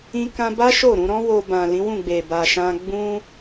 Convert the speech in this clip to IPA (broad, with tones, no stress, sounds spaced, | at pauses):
ĩ˧ k ã˧ b a˦ ʃ o˦˨ ɾ ũ˧ ɾ ɔ̃˦ w o˧ b ã˨ l ĩ˨˦ w ũ˦˨ ɡ͡b e˨ b a˨ ʃ ã˧ ɡ͡b ũ˦